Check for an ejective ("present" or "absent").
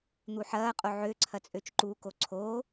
present